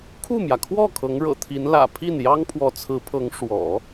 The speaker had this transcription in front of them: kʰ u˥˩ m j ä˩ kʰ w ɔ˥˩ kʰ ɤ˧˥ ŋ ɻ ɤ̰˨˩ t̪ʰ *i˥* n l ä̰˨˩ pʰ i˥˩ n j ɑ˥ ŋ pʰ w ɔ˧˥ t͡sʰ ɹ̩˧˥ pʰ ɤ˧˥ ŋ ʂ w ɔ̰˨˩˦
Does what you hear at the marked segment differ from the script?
yes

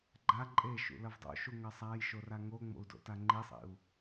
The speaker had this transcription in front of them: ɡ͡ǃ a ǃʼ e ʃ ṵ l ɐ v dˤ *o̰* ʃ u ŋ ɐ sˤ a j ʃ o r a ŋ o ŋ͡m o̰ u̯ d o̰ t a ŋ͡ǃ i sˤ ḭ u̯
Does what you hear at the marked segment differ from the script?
no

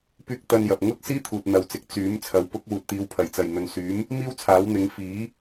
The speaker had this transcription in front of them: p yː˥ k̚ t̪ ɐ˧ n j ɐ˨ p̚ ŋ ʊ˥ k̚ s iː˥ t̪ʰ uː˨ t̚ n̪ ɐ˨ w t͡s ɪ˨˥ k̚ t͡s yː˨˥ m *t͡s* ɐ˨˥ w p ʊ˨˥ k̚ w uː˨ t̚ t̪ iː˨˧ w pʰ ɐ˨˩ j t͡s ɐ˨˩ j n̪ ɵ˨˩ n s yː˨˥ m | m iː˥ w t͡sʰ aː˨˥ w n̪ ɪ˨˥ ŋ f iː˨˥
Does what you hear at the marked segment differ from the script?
yes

